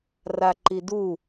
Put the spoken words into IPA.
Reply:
r a ǃ i d u

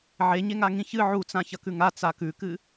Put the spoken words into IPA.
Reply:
ʕ e ɲ e ŋ a ŋ ĩ ç ɨ ʕ u t͡s ã ç ɐ k ʉ ŋ a t͡s a k ʉ k ɨ

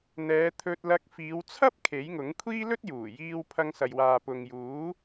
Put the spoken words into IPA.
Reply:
n̪ ɛː˨˧ t̪ʰ ɵ˧ t̚ l ɐ˧ k̚ f iː˨˧ w t͡sʰ ɐ˥ p̚ kʰ e˨˥ j ŋ ʊ˨˥ ŋ kʷʰ iː˥ l ɵ˥ t̚ j uː˨˩ j iː˧ w pʰ ɐ˧ ŋ s ɐ˨ j w aː˨ p ʊ˨ ŋ j uː˨˥

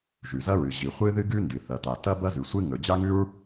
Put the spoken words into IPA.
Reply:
ʒ ʉ˩ z ɐ˥ ɹ ɨ˩ ʑ i˩ χʷ ɨ˥ ð ɨ˥ ɡ ʉ˥ n d ɨ˩ θ ɐ˩ t a˩ t ɐ˥ b ɐ˥ z ʉ˩ sʷ ɨ˥ ŋ ɵ˩ d͡ʑ a˥ ŋ ʉ˥ ɹ

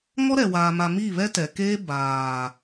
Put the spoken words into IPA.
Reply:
ŋ ɔ˦ ɾ ɛ˨ w aː˨ m a˨ m i˦˨ β ɛ˦ t ɛ˨ k eː˦ b aː˨

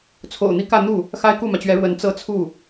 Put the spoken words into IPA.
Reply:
t͡sʰ o̰˨˩ ʊ̯ n̪ i˥ k ä˥˧ n̪ u˥˩ | x a˥ ɪ̯ k u˥˩ m ä˩ t͡ɕ ɥ ɛ˧˥ ɻ w ə˧˥ n t͡s ɤ˥ t͡sʰ u˥˩

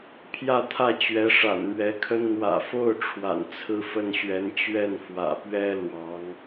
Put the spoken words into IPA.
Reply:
pʰ j ä˥˧ t̪ʰ ä˥˩ t͡ɕ ɥ ɛ˧˥ ʂ a̰˨˩ n m ɥ ɛ˧˥ kʰ ə˥ n n̪ w ä̰˨˩ f o˥˩ ʊ̯ ʈ͡ʂʰ w a̰˨˩ n t͡sʰ ɹ̩˥˧ f ə˥˩ n ɕ ɥ ɛ˧˥ n t͡ɕ ɥ ɛ˥˩ n f w ä̰˨˩ p ɥ ɛ˥ l w ɑ˧˥ ŋ

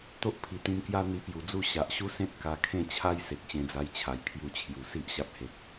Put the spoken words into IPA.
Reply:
t̪ o˦ ʔ pʰ i˨˩ t̪ ĩ˧ m k j a˦ n̪ i˧ p j u˨˩ d͡z u˥˧ ɕ a˨ ʔ ɕ u˦ s ẽ˦ t̚ k a˧ kʰ ẽ˥˧ t͡ɕʰ a˦ j s e˨ k̚ ɕ ẽ˧ d͡z a˧ j t͡ɕʰ a˨˩ j pʰ j u˧ t͡ɕʰ j u˨˩ s i˦ ʔ ɕ a˦ p̚ h e˨ k̚

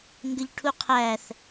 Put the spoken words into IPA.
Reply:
ŋ ɡ ə ʎ ʈʰ u qʰ æ θ

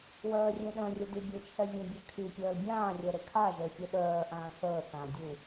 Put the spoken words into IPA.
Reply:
w œː rʲ ẽ ɗ œ̃ rʲ ʊ d y bʲ e t͡ʃʰ ɛ vʲ ə̃ bʲ ɛ kʰ y pʲ œː l bʲ ãː rʲ œ ɾ e kʰ a ʒ əː fʲ e ɗ œː ʔ ãː θ əː θ ã dʲ u

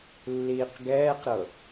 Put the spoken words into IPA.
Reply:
lː iː q ɡ ɛː q ɾ ɤ

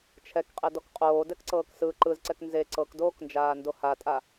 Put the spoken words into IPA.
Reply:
t͡ʃʰ ɛ k qʼ e d ɔ k qʼ oː d ɛ k ǀ ɤː k s ɯ ǃ ɯ z ǀ ɛ k n z e ǀ ɤ k d oː k n d͡ʒ aː n d o h a tʼ a

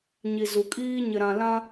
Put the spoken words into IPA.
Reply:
ɲ i˨ z u˨ kʼ iː˦ ɲ ɪ˨ ɾ ã˨ l ã˦

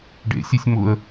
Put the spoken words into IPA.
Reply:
ɖ ḛ sʲ e sʲ m ʊ ə̯

